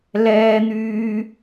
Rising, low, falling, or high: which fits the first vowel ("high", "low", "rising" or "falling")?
high